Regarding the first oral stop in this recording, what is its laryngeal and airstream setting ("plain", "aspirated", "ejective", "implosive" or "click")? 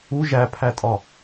aspirated